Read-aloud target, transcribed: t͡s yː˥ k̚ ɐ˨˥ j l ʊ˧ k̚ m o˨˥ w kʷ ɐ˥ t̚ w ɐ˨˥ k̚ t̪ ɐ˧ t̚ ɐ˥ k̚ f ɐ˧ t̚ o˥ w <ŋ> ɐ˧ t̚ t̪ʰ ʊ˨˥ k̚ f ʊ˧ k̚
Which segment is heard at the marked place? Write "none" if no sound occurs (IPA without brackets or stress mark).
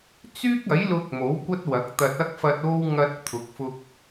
ŋ